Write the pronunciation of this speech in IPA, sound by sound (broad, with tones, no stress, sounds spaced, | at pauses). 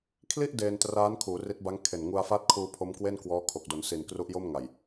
kʰ l i˥˩ ʔ d eː˧ n t r aː˦˥ n kʰ uː˩˦ r i˦˥ t̚ b a˦˥ ŋ kʰ e˨˩ n ŋ u˧ a̯ f a˥˩ t̚ kʰ uː˧ pʰ o˦˥ m k w e˥˩ n k w ɔː˦˥ kʰ o˨˩ k̚ d o˩˦ n s i˨˩ n k r u˦˥ ʔ j o˥˩ m ŋ a˨˩ j